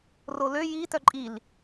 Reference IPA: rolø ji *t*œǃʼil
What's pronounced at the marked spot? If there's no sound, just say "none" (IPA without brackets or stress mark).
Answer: t